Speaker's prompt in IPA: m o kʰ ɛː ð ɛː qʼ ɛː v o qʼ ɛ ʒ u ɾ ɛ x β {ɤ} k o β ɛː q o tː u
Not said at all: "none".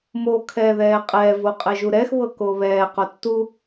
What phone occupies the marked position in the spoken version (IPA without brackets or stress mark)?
ɤ